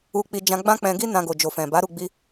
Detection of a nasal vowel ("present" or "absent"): present